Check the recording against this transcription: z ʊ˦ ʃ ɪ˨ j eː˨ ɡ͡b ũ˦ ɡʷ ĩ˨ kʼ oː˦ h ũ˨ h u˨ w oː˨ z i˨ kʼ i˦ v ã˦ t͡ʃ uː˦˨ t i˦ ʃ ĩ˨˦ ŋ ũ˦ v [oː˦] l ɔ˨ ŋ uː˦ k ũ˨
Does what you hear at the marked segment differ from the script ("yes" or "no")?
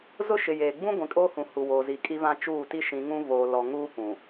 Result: yes